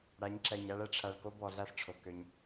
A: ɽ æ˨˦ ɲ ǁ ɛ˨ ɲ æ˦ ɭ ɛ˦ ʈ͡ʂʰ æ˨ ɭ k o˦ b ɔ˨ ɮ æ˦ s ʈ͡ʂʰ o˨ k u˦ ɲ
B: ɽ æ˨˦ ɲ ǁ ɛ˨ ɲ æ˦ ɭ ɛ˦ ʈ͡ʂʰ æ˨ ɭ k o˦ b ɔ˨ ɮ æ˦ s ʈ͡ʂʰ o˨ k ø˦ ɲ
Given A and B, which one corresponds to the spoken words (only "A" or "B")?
B